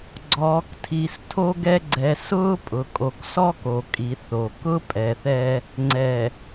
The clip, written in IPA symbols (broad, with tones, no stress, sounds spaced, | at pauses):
ɡ͡ǀ ɔː˨ k tʰ i˨ s tʰ o˦ ɡ ɛ˦ ɡ͡ǀ ɛ˨ s ʊː˦ pʼ ʊ˨ kʼ o˨ k s ɔ˦ k o˨ kʼ i˨ θ o˨ k ʊ˦ pʼ ɛ˨ θ ɛ˦ | ŋ͡ǀ ɛ˨